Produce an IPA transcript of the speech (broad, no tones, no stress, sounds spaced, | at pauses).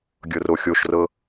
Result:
ɡʲ ɤ r o xʲ o ʃ r ɤ